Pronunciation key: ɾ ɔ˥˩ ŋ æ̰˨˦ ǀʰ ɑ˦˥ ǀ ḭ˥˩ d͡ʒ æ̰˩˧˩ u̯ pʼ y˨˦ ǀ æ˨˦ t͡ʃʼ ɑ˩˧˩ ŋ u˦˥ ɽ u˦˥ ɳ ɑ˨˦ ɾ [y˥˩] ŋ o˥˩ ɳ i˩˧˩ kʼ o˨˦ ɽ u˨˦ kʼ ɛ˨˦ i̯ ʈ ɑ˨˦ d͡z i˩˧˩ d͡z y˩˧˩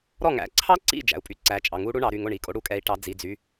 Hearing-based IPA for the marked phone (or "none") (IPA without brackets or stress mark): y˩˧˩